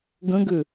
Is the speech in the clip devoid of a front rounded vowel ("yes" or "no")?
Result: no